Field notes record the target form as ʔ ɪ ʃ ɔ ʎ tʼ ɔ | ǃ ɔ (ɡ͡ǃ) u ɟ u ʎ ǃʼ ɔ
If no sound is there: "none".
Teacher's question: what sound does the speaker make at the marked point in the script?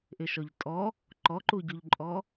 ǃ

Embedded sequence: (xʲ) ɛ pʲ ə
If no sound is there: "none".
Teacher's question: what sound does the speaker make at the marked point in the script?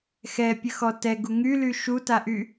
x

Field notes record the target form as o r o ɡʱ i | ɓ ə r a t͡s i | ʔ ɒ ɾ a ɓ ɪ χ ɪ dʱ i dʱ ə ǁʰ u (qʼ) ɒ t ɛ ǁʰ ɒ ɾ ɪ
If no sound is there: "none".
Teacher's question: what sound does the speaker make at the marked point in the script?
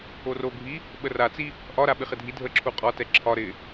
qʼ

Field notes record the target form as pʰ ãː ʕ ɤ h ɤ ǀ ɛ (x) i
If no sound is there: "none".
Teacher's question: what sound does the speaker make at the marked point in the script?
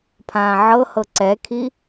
kʰ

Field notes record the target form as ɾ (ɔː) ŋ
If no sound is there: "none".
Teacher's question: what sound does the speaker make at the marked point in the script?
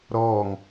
ɔː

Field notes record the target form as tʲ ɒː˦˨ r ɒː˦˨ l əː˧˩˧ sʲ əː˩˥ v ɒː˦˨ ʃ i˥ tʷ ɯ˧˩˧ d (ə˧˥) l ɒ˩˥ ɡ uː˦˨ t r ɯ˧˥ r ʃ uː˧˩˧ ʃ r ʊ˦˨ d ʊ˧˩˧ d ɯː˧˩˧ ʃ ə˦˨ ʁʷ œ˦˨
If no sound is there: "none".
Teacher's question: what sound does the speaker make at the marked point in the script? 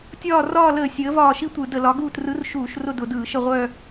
ə˧˩˧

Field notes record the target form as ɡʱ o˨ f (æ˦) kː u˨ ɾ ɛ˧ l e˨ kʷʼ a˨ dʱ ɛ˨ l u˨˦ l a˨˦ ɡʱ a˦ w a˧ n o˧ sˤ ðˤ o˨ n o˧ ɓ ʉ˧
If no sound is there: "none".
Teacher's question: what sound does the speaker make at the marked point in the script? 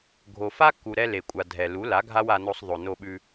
a˦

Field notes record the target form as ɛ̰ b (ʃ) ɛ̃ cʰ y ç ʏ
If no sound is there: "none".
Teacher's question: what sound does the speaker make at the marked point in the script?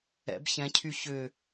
ç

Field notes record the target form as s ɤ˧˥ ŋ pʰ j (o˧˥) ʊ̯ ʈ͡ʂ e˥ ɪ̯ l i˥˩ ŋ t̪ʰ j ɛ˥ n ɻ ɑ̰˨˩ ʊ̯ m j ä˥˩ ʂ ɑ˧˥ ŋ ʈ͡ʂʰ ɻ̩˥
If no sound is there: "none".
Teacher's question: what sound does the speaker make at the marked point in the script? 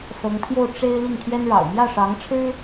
o˥˩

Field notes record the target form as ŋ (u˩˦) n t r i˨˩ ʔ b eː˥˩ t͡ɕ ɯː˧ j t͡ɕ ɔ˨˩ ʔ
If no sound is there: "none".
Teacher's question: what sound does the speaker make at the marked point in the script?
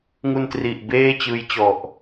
u˧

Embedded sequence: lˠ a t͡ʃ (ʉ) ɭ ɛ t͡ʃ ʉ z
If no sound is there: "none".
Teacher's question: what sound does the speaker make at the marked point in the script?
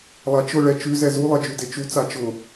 ʊ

